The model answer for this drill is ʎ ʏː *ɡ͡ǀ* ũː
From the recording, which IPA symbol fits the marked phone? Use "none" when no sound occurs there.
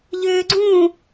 ɡ͡ǀ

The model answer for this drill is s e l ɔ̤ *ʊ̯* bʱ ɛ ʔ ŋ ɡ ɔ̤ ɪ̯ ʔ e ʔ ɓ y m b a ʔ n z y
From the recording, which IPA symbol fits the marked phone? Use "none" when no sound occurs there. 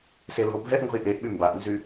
ʊ̯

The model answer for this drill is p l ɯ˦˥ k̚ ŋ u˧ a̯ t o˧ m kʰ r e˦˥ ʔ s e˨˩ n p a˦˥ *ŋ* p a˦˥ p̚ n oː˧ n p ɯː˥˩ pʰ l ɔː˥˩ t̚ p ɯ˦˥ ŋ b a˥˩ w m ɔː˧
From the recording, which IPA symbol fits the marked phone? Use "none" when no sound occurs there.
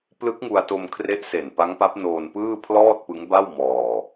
ŋ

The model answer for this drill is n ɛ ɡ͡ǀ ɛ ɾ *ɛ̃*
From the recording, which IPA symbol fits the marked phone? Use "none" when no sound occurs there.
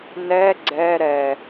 ɛ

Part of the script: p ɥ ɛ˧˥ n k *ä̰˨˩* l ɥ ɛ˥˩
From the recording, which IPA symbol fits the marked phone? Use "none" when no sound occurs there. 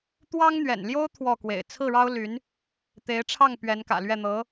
ä̰˨˩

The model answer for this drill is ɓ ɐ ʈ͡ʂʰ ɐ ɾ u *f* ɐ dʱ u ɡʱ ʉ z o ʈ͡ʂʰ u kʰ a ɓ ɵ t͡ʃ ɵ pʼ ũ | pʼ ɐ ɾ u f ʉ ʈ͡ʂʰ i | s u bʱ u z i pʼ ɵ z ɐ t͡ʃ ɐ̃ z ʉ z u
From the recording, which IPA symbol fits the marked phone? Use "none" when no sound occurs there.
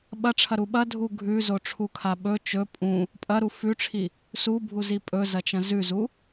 ɓ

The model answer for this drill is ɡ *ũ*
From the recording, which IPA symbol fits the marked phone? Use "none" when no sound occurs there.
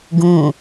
ũː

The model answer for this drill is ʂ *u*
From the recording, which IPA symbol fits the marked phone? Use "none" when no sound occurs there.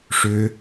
ʏ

